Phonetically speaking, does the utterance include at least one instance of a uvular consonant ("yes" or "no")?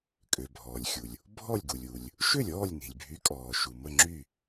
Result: no